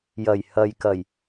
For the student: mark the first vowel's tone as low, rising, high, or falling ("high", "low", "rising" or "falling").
low